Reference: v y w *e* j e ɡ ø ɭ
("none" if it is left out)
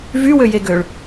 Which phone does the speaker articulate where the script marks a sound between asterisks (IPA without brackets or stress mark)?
ø